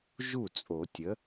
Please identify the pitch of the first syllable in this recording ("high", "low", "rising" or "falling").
falling